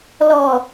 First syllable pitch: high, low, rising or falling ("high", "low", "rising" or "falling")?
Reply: low